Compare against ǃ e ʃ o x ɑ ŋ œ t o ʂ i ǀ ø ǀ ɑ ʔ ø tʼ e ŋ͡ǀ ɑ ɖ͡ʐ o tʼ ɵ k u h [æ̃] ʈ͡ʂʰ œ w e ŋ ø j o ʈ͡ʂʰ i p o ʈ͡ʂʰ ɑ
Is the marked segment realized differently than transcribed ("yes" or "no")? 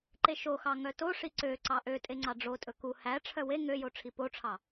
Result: yes